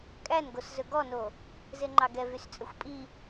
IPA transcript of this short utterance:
kʼ æ n ɡ o s z ɵ ɡ ɔ n o | z e ŋ͡ǃ ɑ ɡ ɛ v y s t͡sʼ ɵ xʷ pʼ i

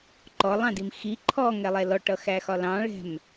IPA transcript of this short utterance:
ǃ ɔ lˠ ɑ̃ d i m x i ǃʰ ɔ ŋ ɛ lˠ ɛ l ɔ ʈ ʌ x æ x ɒ l ɑ̃ ɭ ɛ̤ m

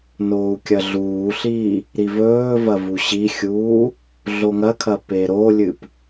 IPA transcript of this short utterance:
n oː u̯ kʲ ɐ ɮ uː ɬ iː | ɾ i v ɵː v ɐ v u ɕ i xʲ uː | ɮ o ŋ ɐ kʰ ɐ p e ɾ o lʲ ɨ p

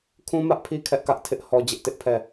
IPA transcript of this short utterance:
kʰ ũ˦ m ä˦ ʔ pʰ i˦ kʰ ɛ˦ ʔ k ä˦ ʔ tʰ ɪ˦ ʔ h ɔ˦ d͡ʑ ɪ˦ ʔ t ɪ˦ ʔ pʰ ɛ˦˨

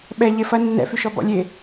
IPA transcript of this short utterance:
ɓ ɛ ʎ e f ɐ nː ɛ̰ f y ʃ ɔ b ɔ̰ lʲ e

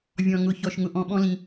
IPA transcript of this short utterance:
vʲ ɔ̃˩ ŋ ʊ˩ ç ɔ˩ ʃ ŋ ʊ˩ ʔ ɔ̃˩ ɓ ɔ̃˧ l ĩ˩

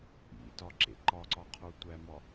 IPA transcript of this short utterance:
ʔ ḭ t ɒ ǁ ḛ ǃ ɒ ǀ ɒ qʰ o tʷ æ m ɒ

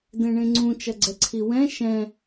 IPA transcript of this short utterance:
d ẽ ɳ ẽ ŋ͡ǀ ũ t͡ʃ ɐ ɡ͡ǀ ɛ ǀʰ i w ɛ̃ ʃ ɛ̃

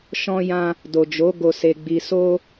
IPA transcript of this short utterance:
ʃ ɔ̃˦ j ã˦ | d o˨ d͡ʒ o˨˦ ɡ o˧ s e˧ ɡ͡b i˧ s o˦

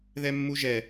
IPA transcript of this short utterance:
ð ɛ mː u ʒ ɛ

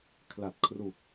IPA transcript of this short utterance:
kʰ l a˨˩ t̚ kʰ r u˨˩ k̚

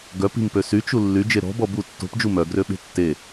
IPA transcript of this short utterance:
ɡ œ p i̤ m p ø s y t͡ʃ u lː y d͡ʒ e ɾ ɔ̤ b ɔ b u tː o̤ p d͡ʒ u m œ ɡ r ø ɓ e̤ tː e

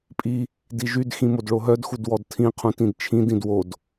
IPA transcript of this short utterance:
pʼ i | d i ʒ y d x ĩ m o d ɭ o ɦ œ d x u d w ɔ d tʰ ĩ qʰ ũ t ĩ d t͡ʃʰ ĩ d ĩ d w o d

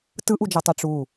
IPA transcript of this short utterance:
t ɯ ʔ u d͡ʒ ɤ tˤ ɛ ʈ͡ʂ u

